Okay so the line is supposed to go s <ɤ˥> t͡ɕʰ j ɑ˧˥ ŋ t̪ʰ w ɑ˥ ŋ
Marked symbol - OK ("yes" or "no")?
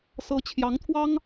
no